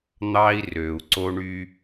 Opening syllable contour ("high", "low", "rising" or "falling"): high